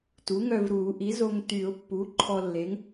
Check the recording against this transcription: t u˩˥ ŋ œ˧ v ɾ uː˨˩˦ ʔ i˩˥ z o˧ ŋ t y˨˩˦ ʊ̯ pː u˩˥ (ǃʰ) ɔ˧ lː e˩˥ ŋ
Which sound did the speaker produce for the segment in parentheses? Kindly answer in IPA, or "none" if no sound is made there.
ǃʰ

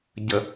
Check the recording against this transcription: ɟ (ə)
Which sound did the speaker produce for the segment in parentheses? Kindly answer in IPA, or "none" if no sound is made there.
ə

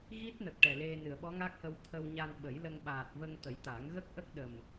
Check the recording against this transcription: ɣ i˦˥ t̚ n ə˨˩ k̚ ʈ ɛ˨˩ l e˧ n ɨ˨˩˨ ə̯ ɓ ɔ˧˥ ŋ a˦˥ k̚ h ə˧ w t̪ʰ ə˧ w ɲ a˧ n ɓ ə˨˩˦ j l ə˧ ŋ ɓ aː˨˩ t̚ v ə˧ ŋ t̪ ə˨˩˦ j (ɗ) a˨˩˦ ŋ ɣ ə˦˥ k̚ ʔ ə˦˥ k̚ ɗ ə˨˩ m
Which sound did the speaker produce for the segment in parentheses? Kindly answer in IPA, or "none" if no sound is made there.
t̪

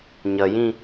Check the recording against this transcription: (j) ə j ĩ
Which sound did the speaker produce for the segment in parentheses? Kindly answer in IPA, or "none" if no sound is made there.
ɲ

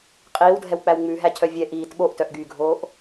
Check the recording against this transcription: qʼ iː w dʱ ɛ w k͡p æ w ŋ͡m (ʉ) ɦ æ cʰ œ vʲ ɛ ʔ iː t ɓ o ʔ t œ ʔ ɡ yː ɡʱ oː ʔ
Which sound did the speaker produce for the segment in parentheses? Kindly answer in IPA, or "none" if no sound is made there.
ʉ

